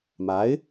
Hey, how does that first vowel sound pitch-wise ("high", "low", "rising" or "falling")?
rising